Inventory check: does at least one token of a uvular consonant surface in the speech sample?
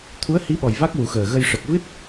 no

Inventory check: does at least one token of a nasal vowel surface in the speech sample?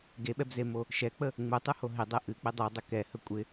no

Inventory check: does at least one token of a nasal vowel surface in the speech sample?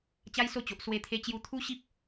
no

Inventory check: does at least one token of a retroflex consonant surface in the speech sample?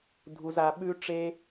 yes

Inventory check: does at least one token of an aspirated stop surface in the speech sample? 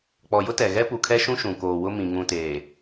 yes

